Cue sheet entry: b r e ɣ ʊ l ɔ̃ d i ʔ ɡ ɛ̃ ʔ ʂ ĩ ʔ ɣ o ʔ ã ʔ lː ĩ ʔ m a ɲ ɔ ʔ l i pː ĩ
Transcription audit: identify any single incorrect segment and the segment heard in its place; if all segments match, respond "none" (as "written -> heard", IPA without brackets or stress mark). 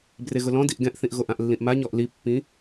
ʂ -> θ